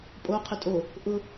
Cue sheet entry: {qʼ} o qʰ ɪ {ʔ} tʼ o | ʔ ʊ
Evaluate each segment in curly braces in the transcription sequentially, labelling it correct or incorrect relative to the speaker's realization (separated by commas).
incorrect, incorrect